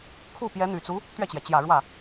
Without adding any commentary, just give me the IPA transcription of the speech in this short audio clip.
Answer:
kʰ u˥˩ p j ɛ˧˥ n̪ y˨˩ t͡s u˧˥ | t̪ ɥ ɛ˥˩ t͡ɕ j ɛ˩ t͡ɕ j ä˨˩ ɻ w ä˥˩

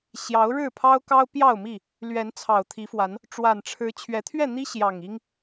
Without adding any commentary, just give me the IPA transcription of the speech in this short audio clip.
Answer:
ɕ j ɑ˨˦ ʊ̯ ɻ ɻ̩˥˨ pʰ ɑ˦ ʊ̯ k ɑ˦ ʊ̯ p j ɑ˥˨ ʊ̯ m i˥˨ | l ɥ ɛ˨˦ n t͡sʰ ɑ˨˩ ʊ̯ t̪ʰ i˨˦ f w a˨˦ n | ʈ͡ʂ w a˨˩ n ʈ͡ʂʰ ɻ̩˨˦ t͡ɕʰ ɥ ɛ˨˦ t̪ʰ ɥ ɛ˥˨ n̪ i˦ ɕ j ɑ˨˩ ŋ i˦ ŋ

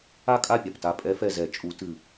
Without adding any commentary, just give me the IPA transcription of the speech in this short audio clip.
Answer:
a˥˨ kʼ a˥˨ pʲ a˩ p t a˧˩ pʼ ɛ˧˥ f ɛ˧˩ z ɛ˨˩˦ t͡ʃʼ u˨˩˦ t ɨ˧˩

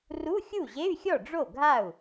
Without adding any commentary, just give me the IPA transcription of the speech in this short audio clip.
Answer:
r u˧˥˧ xʲ u˥˩ ʑ e˧˥˧ y̯ xʲ ɔ˥˩ ɖ͡ʐ o˥˩ ɡʱ a˥˩ u̯

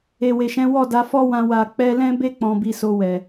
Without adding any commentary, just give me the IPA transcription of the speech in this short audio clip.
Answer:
e˨ w e˨ ʃ ɛ̃˨˦ w ɔ˦˨ d a˨˦ f ɔ˦ w ã˧ w a˨ k͡p ɛ˧ l ɛ̃˦ b e˦ k͡p ɔ̃˧ b i˧ s o˧ w ɛ˨

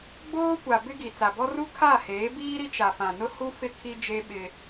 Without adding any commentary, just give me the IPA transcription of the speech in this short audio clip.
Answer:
ɡ͡b oː˦ kʷ a˨ b ɪ˦ ɡ i˨ t͡s a˨ b ɔ˦ r u˦ kʰ a˦˨ h eː˨˦ b iː˦ ɾ i˦ t͡ʃ a˨ f ã˨ n ʊ˦ h u˦ f ɪ˦ kʰ i˦ d͡ʒ e˦ ɓ ɪ˦

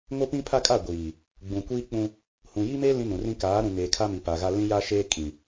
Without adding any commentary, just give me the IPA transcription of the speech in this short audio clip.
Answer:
ŋ o˦ p ĩ˦ pʰ a˦ kʼ a˦˨ ɡʷ iː˨ | ɡ͡b ũ˨ kʷ iː˦ k͡p ũ˦ | h ũ˨ j i˦ m e˦ l ĩ˦ n ũ˨ r ĩ˦ k aː˨˦ ɾ ũ˨ ŋ eː˨ kʰ a˦ m i˨ p a˨ ɣ a˦ l ĩ˦ j a˦ ʃ eː˦ kʼ ĩ˨

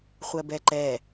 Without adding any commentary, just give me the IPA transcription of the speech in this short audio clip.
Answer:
χʷ ɜ b ɛ ǃ ɛ

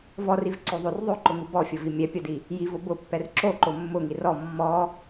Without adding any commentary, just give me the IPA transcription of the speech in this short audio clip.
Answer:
v ɔ r i v ǀ o ðˤ o r ðˤ o ǃ ʊ ŋ u b ɔ fʲ ʊ v i mʲ ɛ pʲ o d i | j i v o b ʊ pː ɛ r ǁ o ǃ o mː ʊ ŋ i r ɔ mː ɔ

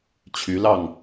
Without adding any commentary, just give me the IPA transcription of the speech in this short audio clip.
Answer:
t͡ɕʰ y˨˦ l ɑ˥˨ ŋ

